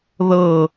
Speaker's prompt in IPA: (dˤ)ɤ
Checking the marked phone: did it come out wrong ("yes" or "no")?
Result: yes